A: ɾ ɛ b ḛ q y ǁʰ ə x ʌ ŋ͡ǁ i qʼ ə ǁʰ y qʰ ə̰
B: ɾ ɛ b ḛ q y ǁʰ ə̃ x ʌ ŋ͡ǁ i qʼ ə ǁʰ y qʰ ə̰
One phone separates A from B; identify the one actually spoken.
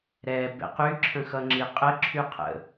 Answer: B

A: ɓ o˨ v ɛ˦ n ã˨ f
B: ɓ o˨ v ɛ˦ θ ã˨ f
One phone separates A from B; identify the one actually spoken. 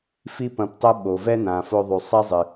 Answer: A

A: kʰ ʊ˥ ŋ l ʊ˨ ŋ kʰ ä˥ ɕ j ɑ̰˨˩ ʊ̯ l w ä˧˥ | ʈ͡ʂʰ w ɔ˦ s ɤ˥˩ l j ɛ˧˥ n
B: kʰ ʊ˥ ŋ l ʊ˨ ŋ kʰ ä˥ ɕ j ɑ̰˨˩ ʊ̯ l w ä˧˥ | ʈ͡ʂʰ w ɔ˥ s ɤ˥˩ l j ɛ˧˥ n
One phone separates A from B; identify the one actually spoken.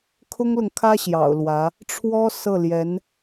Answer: B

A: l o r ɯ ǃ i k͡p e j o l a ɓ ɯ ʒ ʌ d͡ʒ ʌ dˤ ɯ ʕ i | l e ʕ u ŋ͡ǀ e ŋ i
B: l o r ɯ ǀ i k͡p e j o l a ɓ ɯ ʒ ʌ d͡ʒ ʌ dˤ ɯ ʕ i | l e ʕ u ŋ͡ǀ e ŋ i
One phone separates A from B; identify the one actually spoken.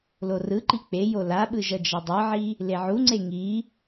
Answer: A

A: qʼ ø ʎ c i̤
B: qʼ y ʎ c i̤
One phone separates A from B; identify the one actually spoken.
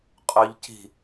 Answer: A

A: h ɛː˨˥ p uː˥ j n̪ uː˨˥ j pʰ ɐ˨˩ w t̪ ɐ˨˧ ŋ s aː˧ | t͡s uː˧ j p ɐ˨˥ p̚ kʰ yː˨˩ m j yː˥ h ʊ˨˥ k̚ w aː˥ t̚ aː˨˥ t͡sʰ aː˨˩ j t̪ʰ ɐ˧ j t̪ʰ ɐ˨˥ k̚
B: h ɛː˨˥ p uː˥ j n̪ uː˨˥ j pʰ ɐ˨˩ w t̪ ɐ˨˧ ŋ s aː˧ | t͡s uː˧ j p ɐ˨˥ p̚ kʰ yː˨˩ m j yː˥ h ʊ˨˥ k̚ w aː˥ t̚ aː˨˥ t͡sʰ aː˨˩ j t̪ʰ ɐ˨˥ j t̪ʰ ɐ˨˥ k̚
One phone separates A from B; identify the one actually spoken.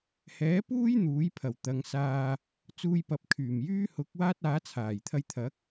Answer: A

